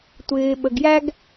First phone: tʷ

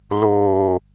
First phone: l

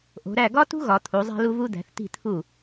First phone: ʔ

